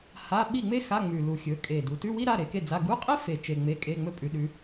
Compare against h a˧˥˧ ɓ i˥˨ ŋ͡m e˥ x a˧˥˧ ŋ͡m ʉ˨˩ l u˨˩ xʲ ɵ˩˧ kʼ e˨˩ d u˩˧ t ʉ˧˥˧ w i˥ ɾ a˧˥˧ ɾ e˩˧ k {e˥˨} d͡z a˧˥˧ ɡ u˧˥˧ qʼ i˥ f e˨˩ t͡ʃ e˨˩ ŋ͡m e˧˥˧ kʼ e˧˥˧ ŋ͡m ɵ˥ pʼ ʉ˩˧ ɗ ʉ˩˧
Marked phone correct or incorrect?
correct